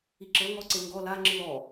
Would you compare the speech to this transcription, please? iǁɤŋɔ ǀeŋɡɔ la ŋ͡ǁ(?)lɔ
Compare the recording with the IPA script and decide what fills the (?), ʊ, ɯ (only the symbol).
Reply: ɯ